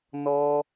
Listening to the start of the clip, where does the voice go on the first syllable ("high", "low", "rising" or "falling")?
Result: high